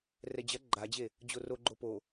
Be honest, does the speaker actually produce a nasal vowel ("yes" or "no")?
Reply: no